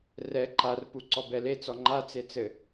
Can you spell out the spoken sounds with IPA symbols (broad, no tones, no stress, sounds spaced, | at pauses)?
r ɛ ǃ a r p u ǀ ɔ b ɛ l e t͡s ɔ ŋ͡ǃ a t͡s e t͡s ɘ